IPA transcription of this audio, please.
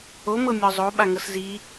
omɤ mʲɔzˤo ɓaŋɤszi

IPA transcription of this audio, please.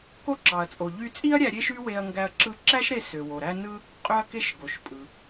ko˥ǁɑ˩ɐ̯t͡sʼo˩ ʎy˧t͡sʼi˥ɐ̯ ɾʲæ˧ ɾʲe˥ʃy˥we˧ɐ̯ŋɡæ˧ɐ̯ ǁɯ˧ǁæ˥ʃɾe˧ sø˩wo˩ɾæ˥ nɯ˥ | qʼø˥ɐ̯ke˥ʃ ɡo˩ʃpʼɯ˩

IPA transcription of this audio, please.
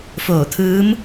foː˧˩t̪ʰɯː˧˥m

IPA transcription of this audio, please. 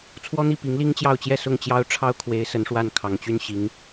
t͡sʰwɔ˥n̪i˥˩ pi˧˥ŋli˥ŋt͡ɕjɑ˥˧ʊ̯t͡ɕjɛ˥˧ sʊ˥˩ŋt͡ɕjɑ˥ʊ̯ʈ͡ʂʰɑ˥ʊ̯kʰwe˧˥ɪ̯ sə˧˥nʂwa˥˩n kʰɑ˨˩ŋt͡ɕy˥˩n ɕi˧˥ŋ

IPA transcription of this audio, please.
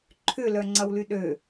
ǃʰʏlœŋ͡ǀɐwly ɗø

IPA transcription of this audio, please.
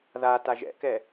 ða taʒɛ̰kɛ

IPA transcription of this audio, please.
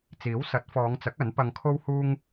t͡siː˨˥wsɐ˨˥t̚fɔː˨˧ŋt͡sɐ˨˥k̚ ɐ˨˥n pɐ˧ŋkʰo˥whuː˥ŋ

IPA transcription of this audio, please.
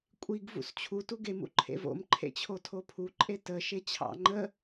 kʷʼiɡ vṵst͡ɕʰu tuɡem ṵǃʰḛvo̰m ǃʰḛt͡ɕʰotʰopʰu ǃʼetə ʃet͡ɕʰɑ̰ ŋ͡ǃə

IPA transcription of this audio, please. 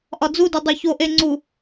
ʔɒd͡zude dˤoçoʔe ŋ͡ǀu

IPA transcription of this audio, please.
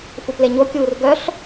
fupleɲokʲuːr ɡœɬ

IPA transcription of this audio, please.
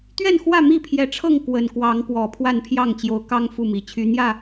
t̪ɥɛ˥˨nxwä˥˨ mi˥˨pʰjɛ˨˦ʈ͡ʂʰɤ˥˨ŋ kwə˨˩nkwɑ˨˦ŋkwɔ˨˩ pʰwa˥˨npʰjɑ˥˨ŋt͡ɕjo˨˦ʊ̯ kɑ˦ŋ fu˥˨mi˨˩t͡ɕʰy˦ n̪jä˥˨

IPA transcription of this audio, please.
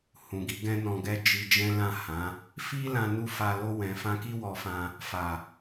hũ˨ɡi˨˦ ɡɛ̃˦nɔ̃˧ɡɛ˦ d͡ʒi˧d͡ʒɛ̃˦lã˦˨ hã˨˦ | fi˦lã˧ nu˦fa˧ lo˧wɛ̃˨fã˧ki˦ wɔ˧fã˧ | fa˨

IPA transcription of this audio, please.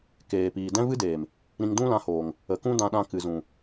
keː˨piː˨ dɛ̃˦vɨ˦deː˨m | ɾĩ˧ŋdũ˦lã˧hoː˨ŋ | ə˨kũ˦ dã˧ɗã˧kɨ˨ zũ˨

